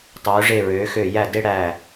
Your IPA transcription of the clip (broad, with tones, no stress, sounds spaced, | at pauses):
tˤ øː˩˧ ʐ e˧˩ ɹ øː˩˧ x øː˧˩ j æ˧˩ d e˧ ɽ æ˧˩